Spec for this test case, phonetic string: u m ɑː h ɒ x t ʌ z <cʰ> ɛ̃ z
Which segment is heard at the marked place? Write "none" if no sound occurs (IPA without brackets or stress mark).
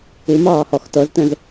t